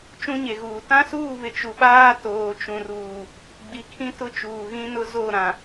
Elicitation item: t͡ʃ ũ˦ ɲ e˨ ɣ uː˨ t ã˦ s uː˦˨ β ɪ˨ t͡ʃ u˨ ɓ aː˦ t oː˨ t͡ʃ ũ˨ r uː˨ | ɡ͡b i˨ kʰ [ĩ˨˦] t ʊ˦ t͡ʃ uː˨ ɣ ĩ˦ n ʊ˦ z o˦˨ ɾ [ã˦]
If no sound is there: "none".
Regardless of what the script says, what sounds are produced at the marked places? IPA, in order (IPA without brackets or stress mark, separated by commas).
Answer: ĩ˦, ã˨